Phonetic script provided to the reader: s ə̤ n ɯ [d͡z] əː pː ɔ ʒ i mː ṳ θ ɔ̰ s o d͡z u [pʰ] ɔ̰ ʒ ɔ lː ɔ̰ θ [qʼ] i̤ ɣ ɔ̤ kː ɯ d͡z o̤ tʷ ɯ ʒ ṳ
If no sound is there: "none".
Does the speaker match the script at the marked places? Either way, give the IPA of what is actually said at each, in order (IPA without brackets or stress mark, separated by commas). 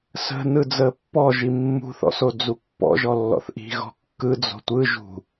d͡z, pː, ʔ